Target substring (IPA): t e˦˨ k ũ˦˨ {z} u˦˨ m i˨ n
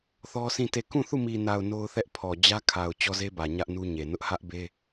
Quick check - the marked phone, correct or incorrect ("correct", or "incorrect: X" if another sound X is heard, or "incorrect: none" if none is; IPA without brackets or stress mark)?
incorrect: θ